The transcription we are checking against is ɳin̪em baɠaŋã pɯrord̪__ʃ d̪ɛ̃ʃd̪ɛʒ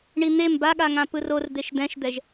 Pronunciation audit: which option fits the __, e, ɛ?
e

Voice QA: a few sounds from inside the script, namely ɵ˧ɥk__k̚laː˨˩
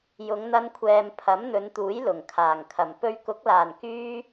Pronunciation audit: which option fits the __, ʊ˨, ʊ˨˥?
ʊ˨˥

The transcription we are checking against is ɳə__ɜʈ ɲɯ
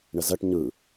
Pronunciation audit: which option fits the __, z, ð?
z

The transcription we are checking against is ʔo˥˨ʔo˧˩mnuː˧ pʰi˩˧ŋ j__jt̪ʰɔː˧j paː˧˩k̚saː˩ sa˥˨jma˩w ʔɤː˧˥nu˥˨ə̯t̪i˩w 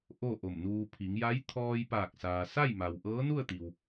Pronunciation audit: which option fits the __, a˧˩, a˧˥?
a˧˥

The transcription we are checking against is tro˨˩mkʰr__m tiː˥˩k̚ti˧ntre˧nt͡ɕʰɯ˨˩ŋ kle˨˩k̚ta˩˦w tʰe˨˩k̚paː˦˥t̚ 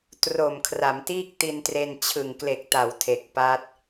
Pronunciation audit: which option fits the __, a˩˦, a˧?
a˩˦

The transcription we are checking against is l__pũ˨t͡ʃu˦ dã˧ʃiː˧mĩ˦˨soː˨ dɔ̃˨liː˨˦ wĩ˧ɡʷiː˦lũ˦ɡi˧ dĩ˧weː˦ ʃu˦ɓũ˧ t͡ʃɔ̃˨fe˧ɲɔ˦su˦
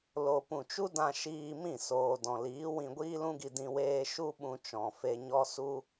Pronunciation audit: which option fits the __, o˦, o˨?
o˨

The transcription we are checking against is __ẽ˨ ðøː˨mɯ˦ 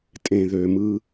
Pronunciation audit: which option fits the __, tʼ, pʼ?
tʼ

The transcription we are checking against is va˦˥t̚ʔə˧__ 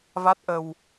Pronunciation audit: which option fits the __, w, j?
w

